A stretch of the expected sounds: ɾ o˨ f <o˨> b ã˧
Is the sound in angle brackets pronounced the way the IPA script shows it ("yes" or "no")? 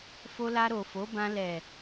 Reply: no